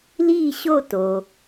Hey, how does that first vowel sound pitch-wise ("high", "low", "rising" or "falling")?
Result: falling